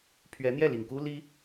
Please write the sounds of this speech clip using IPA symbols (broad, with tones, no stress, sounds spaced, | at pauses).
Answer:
pʰ ɥ ɛ˧˥ n̪ j ɛ˥˩ l i˨˩ ŋ k u˥ l i˥